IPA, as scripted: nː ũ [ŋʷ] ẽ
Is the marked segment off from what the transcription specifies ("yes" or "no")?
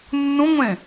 no